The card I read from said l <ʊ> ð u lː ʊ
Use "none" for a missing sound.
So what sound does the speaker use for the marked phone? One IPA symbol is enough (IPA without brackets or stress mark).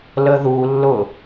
ə